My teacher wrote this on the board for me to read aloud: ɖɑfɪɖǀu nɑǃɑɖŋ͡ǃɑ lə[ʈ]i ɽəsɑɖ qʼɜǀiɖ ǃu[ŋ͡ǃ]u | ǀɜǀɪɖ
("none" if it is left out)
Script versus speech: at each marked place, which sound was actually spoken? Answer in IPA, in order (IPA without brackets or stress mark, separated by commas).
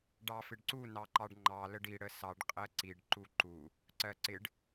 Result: ɖ, ǃ